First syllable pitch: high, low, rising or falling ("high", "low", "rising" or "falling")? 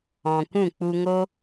low